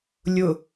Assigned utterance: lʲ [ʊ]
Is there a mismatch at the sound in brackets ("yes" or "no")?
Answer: no